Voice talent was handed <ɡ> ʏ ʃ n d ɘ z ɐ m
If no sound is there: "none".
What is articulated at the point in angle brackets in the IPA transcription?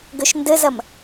ɡ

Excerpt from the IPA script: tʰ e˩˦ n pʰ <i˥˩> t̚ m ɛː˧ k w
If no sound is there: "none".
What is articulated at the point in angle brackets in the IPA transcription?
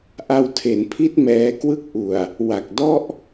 i˦˥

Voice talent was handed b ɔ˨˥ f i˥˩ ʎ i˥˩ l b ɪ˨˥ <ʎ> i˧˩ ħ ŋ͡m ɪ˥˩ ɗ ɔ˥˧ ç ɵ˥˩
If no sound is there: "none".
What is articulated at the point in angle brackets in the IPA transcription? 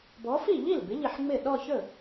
ʎ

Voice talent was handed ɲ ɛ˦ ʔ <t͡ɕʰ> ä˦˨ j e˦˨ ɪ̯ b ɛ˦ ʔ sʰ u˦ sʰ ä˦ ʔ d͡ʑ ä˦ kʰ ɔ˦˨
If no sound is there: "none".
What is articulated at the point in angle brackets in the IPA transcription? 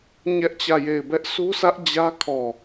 t͡ɕ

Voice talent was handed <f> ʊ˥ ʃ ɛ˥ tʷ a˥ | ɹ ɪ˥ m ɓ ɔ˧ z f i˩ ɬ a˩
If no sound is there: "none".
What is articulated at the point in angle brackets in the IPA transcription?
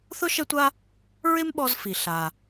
θ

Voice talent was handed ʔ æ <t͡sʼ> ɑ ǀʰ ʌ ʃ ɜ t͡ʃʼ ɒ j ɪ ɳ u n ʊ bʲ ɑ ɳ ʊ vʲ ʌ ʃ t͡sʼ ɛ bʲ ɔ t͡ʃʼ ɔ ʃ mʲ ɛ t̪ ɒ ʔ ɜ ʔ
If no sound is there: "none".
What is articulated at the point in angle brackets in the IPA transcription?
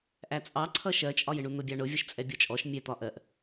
t͡sʼ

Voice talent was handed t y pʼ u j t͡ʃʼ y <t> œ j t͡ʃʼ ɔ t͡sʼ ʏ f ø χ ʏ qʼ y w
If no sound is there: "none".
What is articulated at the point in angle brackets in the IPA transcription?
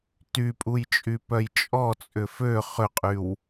p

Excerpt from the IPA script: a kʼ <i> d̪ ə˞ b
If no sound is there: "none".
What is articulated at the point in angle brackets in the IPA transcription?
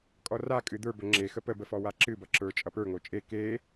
ɨ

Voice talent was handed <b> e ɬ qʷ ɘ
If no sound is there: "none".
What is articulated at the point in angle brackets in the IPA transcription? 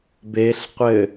b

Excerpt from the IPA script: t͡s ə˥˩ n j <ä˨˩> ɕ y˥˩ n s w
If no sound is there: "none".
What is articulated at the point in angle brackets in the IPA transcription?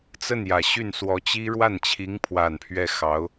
ä˨˩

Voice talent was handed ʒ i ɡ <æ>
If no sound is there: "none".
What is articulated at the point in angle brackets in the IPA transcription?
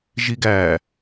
æ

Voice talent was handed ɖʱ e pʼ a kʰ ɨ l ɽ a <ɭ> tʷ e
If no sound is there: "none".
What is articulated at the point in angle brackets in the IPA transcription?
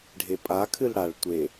ɭ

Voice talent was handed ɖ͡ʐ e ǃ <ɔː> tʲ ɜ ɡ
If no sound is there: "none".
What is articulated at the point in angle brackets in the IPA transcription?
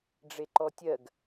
ɔ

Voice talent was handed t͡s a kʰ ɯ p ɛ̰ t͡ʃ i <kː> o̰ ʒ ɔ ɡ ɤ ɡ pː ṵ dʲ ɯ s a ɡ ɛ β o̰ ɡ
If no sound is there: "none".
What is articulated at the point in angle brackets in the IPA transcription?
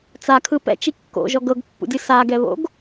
kː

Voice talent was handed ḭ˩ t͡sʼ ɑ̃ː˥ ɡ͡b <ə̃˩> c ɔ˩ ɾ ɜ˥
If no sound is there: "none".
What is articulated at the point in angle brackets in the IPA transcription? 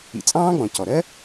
ɔ̃˩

